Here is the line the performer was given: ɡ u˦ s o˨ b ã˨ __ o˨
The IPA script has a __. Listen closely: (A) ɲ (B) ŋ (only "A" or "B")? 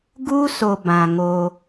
B